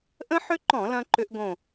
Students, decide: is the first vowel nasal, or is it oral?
nasal